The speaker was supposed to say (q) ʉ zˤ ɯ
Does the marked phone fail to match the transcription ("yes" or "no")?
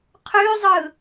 yes